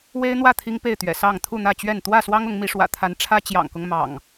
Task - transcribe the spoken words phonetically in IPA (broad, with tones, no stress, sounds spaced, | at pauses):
w e˦ ɪ̯ n̪ w ä˥˨ t̪ʰ i˦ ŋ p e˥˨ ɪ̯ t̪ ɥ ɛ̰˨˩ s ɑ˥˨ ŋ t̪ʰ u˥˨ n̪ ä˥˨ t͡ɕ ɥ ɛ˥˨ n t̪ w ä˥˨ s w ɑ˦ ŋ ʊ˨˦ ŋ m i˨˦ ʂ w ä̰˨˩ t̪ʰ a˨˦ n ʈ͡ʂʰ ä˦ t͡ɕ j ɑ̰˨˩ ŋ k ʊ˦ ŋ m ɑ̰˨˩ ŋ